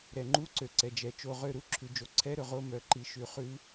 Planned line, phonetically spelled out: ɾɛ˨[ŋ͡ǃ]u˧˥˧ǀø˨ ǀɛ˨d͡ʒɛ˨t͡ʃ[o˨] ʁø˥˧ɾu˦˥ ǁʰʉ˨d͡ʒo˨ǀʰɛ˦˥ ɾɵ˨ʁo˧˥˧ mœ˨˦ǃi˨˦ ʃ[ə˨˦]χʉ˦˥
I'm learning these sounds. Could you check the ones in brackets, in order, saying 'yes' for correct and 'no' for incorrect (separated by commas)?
yes, no, no